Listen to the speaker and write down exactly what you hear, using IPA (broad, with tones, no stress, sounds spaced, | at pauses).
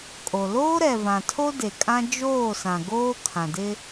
kʼ o˨ l oː˦ ɾ ɛ˨ v ã˨ tʰ o˦ d e˨ kʼ ã˦ d͡ʒ oː˦˨ s ã˨ ɡ oː˦ kʰ ã˨ d ɪ˦